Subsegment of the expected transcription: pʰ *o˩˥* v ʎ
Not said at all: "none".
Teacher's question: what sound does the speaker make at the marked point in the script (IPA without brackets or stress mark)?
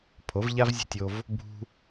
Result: o˩˥